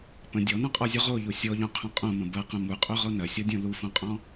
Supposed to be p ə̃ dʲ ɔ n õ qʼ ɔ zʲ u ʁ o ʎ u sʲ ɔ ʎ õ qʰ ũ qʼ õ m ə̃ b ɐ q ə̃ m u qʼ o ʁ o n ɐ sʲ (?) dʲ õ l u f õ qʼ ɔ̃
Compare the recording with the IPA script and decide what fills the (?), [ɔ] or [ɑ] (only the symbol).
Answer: ɔ